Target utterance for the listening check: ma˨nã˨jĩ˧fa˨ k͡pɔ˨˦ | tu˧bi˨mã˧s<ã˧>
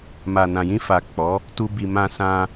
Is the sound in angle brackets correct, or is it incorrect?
correct